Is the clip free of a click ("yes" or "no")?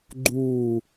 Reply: no